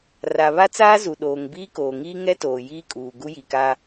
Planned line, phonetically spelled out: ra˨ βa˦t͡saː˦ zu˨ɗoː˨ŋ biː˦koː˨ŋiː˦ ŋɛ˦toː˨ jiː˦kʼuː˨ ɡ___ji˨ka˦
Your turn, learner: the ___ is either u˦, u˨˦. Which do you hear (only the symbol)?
u˦